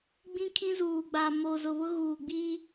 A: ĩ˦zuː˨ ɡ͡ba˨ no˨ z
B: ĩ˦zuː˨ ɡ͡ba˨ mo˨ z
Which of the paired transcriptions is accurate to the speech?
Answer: B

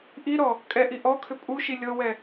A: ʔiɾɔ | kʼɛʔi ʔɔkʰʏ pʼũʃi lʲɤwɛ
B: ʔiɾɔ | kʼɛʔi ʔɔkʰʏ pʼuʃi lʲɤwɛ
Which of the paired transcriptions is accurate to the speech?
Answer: B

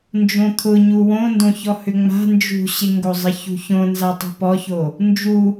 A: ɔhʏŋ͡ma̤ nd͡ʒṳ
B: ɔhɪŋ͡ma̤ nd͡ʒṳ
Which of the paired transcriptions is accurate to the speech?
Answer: A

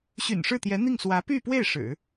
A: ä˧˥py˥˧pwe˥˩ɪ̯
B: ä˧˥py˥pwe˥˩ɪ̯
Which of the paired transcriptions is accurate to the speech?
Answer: A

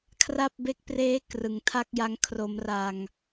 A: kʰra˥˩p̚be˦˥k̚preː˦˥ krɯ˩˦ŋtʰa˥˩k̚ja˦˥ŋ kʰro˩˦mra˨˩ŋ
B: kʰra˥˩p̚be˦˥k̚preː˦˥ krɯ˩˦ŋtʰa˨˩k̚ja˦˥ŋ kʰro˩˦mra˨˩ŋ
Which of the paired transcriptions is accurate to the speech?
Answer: A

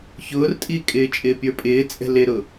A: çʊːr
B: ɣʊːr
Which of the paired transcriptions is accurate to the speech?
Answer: A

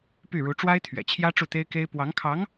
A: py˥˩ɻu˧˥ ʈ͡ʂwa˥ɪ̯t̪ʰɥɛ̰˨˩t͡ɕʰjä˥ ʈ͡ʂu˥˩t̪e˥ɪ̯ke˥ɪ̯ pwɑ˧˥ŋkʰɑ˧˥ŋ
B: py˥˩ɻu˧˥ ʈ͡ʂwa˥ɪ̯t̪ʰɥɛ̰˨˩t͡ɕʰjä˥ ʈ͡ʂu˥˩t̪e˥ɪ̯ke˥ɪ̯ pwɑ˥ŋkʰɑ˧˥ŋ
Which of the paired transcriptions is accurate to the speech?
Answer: A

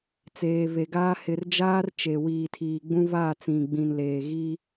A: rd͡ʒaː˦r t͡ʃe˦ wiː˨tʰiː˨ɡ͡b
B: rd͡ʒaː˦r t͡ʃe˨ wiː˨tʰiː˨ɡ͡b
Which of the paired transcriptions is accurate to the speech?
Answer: B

